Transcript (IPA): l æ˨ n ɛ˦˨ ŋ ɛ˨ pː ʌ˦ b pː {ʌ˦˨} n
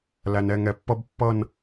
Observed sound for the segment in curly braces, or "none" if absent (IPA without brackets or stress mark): ʌ˦˨